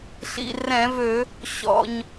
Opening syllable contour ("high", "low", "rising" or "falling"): low